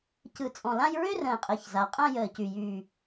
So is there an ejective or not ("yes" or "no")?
yes